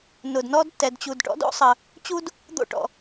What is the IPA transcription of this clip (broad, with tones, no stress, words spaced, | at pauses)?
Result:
nʊ˩dnɔ˥d tːɛ˩dt͡ɕu˩dʈɔ̰˥d o̰˥sˤə˩ | t͡ɕu˥d | d̪o̰˥ʈɔ̰˩